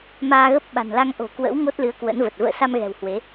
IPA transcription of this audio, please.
m aː˧ ɣ ə˦˥ p̚ ɓ a̤˨˩ n l a˧ ŋ ʔ o̤˨˩ k w ə̰˧˥ w ŋ o˦˥ t̚ l ɨ˨˦ ə̯ k w ə̰˧˥ n v ə˨˩ t̚ v ə̰ː˧˨ s a˧ m ɣ ɛ̤˨˩ w h w e˨˦

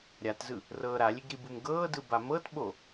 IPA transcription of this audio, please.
ɾʲ a t z ɯ | r ɤː ɾ a lʲ e ɡ ɾ i b u m ɡ ɤː d ɯ b a m ɤ t ɓ o

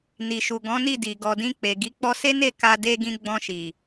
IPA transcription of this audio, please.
n i˨ ʃ u˨ ɡ ɔ̃˨˦ n i˦˨ d i˨ ɡ ɔ˨ d ĩ˧ k͡p e˨ ɡ i˨˦ k͡p ɔ˧ s e˦ n e˦˨ k a˧ d e˧ ɡ ĩ˧ ɡ͡b ɔ̃˧ ʃ i˨

